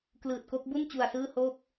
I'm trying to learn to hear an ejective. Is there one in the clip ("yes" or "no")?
no